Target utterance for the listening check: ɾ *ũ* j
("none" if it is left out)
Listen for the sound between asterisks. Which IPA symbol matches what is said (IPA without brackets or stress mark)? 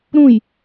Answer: ũ